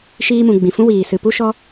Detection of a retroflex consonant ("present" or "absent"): absent